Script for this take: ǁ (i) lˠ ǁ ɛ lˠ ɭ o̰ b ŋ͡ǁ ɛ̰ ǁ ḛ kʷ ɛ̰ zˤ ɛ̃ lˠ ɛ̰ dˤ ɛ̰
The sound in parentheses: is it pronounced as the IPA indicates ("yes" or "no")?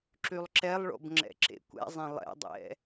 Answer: no